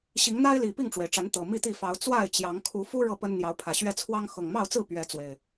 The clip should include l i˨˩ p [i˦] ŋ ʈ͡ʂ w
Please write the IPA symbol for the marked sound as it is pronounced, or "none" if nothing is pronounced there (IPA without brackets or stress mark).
i˥˨